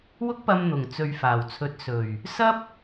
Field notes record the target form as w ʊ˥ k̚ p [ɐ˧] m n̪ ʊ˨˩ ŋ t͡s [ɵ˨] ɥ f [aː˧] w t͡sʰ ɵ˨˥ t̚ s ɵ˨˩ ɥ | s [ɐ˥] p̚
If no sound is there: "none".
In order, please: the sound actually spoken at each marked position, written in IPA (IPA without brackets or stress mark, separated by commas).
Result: ɐ˧, ɵ˨, aː˨˩, ɐ˥